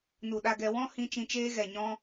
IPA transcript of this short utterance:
nu˨ɗa˧ɡɛ˧ wɔ̃˦hĩ˧ t͡ʃĩ˧t͡ʃeː˦ɣɛ˨ɲɔ̃˦

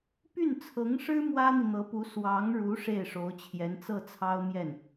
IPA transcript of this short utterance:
py˥˩nt͡sʰɤ˧˥ŋʂɻ̩˥ mwä˥n̪i˨ n̪ɤ˧˥pu˧˥ swɑ˧˥ŋɻu˧˥ ʂe˥˩ɪ̯ʂo˧˥ʊ̯t͡ɕʰjɛ˧˥n t͡sɤ˥˩t͡sʰɑ˥ʊ̯mjɛ˥˩n

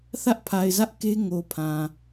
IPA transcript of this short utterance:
θä˦ʔpʰa˨ɪ̯zä˦ʔ ke˦ ŋo˨pʰã˨

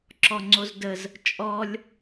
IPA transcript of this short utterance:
ǁɔŋ͡ǀozdəz | t͡ʃʼɔlʲ

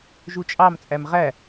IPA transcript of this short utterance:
ʒut͡ʃʼɑm t͡sʼæmʁæ

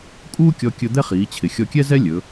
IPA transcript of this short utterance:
kʼuː˥kʲɔ˧kʲɵ˧ d̪ɛ˥χiː˩˧t͡ɕʰɪ˩ xʲɔ˧kʲɛ˥zɛ˥ lʲɵ˩˧

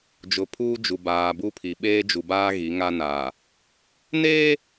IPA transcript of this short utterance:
d͡ʒʊ˨pʰuː˦d͡ʒu˨ baː˨bu˦pʰi˨ ɓeː˦d͡ʒu˨baː˦ ɣi˨˦ŋa˦naː˨ | neː˦

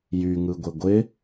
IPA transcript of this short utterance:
jyŋɯɡʷɪ ɡʷɪ

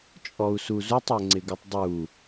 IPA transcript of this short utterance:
t͡ʃʼɔu̯suzutˤ ɛŋ͡ǀɪɡutˤdˤu

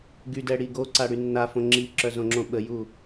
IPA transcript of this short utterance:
ɡydɛ ɽiɡoǀa ɽynːafõ ŋ͡ǁiǁœ zõŋ͡ǁõɓəju

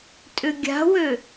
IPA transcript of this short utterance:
tʼʏɡʲa̤wø

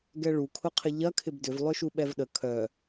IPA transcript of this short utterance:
ɡɛɭukʰʊqʰɪ ʎɐkʰɪb dʏvlˠʏʃu ɓɛvɗə kʰœ

